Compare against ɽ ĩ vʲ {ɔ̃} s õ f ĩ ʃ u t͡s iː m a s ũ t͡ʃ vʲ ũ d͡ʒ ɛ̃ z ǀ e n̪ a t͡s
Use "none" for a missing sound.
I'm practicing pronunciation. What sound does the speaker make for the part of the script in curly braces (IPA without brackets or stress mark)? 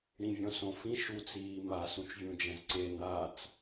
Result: ɔ̃